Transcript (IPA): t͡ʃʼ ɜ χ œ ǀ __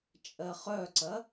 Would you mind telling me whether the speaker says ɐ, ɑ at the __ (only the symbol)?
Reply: ɐ